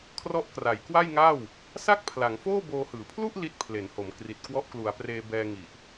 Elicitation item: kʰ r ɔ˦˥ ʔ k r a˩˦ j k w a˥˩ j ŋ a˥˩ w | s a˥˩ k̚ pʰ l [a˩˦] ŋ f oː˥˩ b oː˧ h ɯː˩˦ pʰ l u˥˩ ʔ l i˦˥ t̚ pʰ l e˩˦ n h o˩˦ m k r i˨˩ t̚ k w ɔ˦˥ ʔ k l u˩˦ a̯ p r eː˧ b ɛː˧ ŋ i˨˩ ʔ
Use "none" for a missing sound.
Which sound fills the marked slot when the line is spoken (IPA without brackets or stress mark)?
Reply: a˩˦